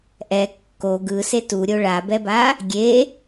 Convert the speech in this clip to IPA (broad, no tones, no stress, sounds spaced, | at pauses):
ʔ ɛ kː o ɡ ɯ s e t u ɾʲ o ɭ a b ɛ b a | ɡʲ e